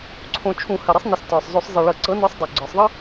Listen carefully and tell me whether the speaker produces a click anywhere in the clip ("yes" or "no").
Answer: yes